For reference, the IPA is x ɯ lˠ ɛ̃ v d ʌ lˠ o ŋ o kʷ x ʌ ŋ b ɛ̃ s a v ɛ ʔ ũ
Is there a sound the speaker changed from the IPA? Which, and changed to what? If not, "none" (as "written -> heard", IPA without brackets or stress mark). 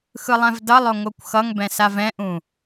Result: ɛ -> ɛ̃